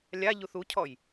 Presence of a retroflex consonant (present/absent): absent